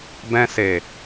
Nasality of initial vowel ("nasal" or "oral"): nasal